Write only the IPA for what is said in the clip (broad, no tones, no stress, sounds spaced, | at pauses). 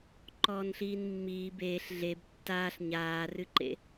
ǃ ɔː n ɬ iː n mː iː b eː ɬ ɮ e b tː aː ɬ ɲ aː r ɨ ǃ ḛ